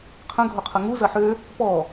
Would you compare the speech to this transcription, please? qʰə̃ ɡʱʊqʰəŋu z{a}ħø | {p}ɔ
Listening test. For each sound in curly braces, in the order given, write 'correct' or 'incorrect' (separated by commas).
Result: incorrect, correct